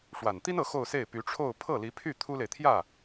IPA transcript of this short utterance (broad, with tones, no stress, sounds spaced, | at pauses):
ʂ w a˨˩ n t̪ i˥ n ɤ˧˥ x o˥˧ ʊ̯ s e˥˩ ɪ̯ p y˧˥ ʈ͡ʂʰ o˥˧ ʊ̯ pʰ ɤ˥˩ l i˧˥ pʰ y˥˩ t̪ʰ u˥ l e˨ ɪ̯ t̪ʰ j ä˥˩